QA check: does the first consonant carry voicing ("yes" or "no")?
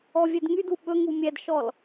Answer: yes